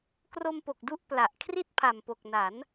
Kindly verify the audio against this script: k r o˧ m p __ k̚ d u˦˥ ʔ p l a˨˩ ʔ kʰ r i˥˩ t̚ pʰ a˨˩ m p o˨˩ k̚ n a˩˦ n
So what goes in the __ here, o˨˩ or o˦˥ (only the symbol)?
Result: o˨˩